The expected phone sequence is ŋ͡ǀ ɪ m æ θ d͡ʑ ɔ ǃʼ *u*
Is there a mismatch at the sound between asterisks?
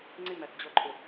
yes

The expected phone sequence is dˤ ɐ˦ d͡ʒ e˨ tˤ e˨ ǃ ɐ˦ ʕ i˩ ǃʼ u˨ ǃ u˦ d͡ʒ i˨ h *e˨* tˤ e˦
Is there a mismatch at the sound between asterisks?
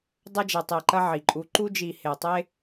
no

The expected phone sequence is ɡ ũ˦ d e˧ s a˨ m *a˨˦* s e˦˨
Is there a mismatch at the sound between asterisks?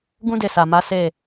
no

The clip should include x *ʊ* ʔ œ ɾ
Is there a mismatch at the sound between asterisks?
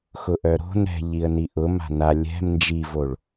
no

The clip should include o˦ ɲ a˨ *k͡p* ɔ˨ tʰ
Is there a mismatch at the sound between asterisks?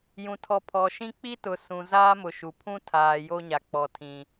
no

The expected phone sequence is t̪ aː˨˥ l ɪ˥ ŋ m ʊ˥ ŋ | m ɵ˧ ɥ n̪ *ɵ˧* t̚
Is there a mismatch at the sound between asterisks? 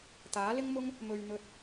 no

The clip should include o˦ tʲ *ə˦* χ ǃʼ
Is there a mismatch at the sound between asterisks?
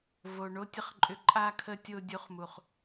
yes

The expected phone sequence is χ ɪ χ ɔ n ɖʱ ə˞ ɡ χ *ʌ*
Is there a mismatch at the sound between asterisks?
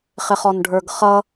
no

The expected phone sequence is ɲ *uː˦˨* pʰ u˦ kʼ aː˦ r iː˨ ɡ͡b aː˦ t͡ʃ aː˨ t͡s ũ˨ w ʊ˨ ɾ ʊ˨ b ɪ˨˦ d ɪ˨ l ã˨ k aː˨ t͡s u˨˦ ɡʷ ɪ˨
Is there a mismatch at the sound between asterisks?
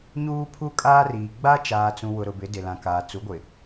yes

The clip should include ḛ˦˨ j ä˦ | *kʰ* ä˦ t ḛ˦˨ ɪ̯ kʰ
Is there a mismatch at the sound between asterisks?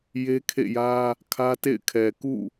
no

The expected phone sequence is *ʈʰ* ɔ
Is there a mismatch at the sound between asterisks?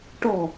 yes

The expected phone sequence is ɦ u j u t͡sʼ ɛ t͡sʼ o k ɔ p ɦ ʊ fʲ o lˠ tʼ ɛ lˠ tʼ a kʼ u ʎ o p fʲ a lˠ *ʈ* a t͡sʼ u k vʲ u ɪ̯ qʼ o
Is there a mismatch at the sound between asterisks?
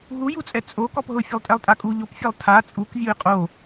yes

